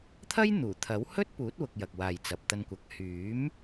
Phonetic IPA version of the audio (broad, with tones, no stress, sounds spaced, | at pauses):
t̪ʰ ɐ˥ j n̪ uː˨˩ t̪ʰ ɐ˨˥ w h ɵ˥ t̚ p uː˨˥ t̚ w ʊ˧ k̚ j ɐ˨ k̚ w aː˨ j t͡s ɐ˨ p̚ t̪ ɐ˧ n kʷ ɐ˨ k̚ h yː˨˥ m